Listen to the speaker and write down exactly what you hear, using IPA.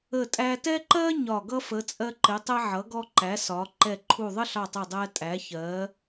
ə˧˩tʼæ˧tɛ˥ ǃɜ˥ ɲɒ˧˩ɡʌ˥ fə˩˧t͡sʼɜ˧ǃɪ˩˧ tˤɛ˧ʕʌ˩˧ɡɔ˧ǃæ˩˧ sɒ˩˧ ǃɛ˧˩ǃʰu˧˩ ðˤə˥ɬɑ˧˩tˤɜ˧˩dˤæ˧ tʼæ˩˧çɜ˩˧

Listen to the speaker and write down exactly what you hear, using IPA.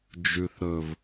d͡ʒʉ˨θɾɵ˨v

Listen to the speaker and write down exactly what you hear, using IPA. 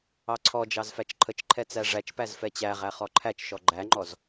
ɑǀʰɔd͡ʒɑz fæt͡ʃǃʰət͡ʃǃʰɛ t͡sæʐæt͡ʃpæz fɛt͡ɕæʁæ χɔǃʰæt͡ʃʃɔ ɡ͡ǃæŋ͡ǃɔz

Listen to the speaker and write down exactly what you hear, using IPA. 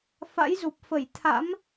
fa̰˧˥jzu˨˩p̚fə˧˩j t̪ʰa̰˧˥m

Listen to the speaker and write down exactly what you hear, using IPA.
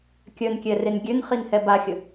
kʲœnkʲɛren ɡʲønχinhɛ baxʲə

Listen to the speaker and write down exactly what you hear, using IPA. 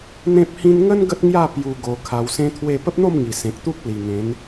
n̪ẽ˦p̚hĩ˦n ŋə˦n ɡə˦t̚ŋja˥˧ pju˧ ɡo˨˩ kʰa˧wsẽ˦t̪ʰwe˥˧ pə˦p̚n̪o˥˧mŋi˨˩ sẽ˨k̚t̪u˦k̚ li˨˩ŋẽ˨˦n

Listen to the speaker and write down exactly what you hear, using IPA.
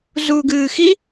zuːɡɨːxi

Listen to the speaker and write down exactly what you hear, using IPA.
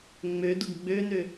ŋ͡mø dʊɡɡ͡bønø

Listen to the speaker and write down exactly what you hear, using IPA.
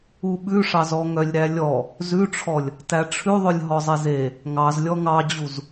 uɓʉʂɑz ɔŋœlʲɾælʲɔ | zʉʈ͡ʂʰɔlʲ | tæʈ͡ʂʰʉ ðˤɵlʲɦɔzˤeze | ŋɑzlʲɔ ŋɑd͡ʑuz

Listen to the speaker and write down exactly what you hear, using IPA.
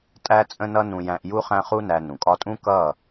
tʼæ˦t͡sʼə̃˦nʌ˦ nũ˧jæ̃˧ʔ ju˦χæ̃˦χu˦næ˧ nũ˨kʼɒ˧tʼũ˦ kʌ˦˨

